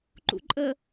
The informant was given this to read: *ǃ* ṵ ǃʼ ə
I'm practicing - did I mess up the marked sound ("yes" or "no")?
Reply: no